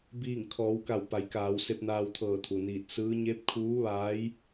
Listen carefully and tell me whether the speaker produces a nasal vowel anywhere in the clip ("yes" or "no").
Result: no